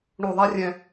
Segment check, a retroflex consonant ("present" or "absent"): present